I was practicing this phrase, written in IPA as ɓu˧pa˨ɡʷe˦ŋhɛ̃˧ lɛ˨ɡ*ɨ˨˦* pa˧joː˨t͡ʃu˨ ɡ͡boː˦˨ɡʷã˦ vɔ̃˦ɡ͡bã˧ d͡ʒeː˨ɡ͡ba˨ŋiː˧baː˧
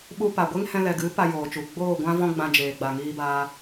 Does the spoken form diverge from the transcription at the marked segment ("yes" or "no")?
no